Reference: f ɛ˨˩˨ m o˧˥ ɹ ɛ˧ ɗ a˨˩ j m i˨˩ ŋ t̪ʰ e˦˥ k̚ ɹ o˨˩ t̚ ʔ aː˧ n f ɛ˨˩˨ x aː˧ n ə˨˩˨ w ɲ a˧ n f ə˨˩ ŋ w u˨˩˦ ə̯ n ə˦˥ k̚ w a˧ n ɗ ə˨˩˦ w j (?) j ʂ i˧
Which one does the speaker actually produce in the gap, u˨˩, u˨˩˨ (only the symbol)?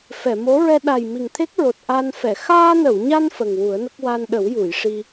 u˨˩˨